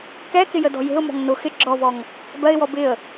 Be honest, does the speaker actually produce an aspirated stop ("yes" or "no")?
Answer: no